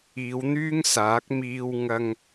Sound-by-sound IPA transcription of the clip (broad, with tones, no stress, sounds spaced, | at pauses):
iː˨˧ w n̪ yː˥ ŋ s aː˨˥ k̚ m iː˧ w ŋ ɐ˧ ŋ